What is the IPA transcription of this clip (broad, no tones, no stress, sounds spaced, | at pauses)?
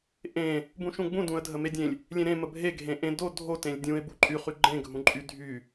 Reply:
ʔ ẽ | b ũ ʃ ũ ɡ͡b ũ d ũ ə̯ dʱ ə m e dʲ ẽ lʲ | lʲ ẽ ɾ ẽ m ə bʱ e ɡʱ ẽ ʔ ẽ d o dʱ o t ẽ lʲ dʲ ũ ɪ̯ b u ǃʼ y χ y ɡ͡ǃ ẽ ɡʱ ũ ǃʼ y dʱ y